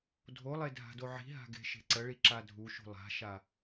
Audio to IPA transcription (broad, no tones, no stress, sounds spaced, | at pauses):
dʱ o lˠ e dʱ a̤ d o ʕ i̤ ɦ a̤ ɡ e̤ ʃ e̤ ǀ ə ɭ i ǁ a dʱ u ʃ ṳ lˠ a̤ ʃ a